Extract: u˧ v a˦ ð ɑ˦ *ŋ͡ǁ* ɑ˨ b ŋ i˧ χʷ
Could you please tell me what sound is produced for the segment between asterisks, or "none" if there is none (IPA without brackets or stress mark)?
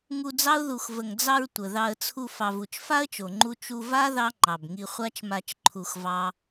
ŋ͡ǃ